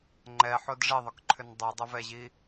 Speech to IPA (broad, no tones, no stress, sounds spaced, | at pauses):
ŋ͡ǃ ɛ ħ o d ʐ ɪ ðˤ ʏ k ǃʰ ʏ n dˤ u dˤ ɪ v ɛ ʑ i